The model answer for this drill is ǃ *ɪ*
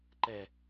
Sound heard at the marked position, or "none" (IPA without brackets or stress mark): ɛ